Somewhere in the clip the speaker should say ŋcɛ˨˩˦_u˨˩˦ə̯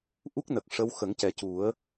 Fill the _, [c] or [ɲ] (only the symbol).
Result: c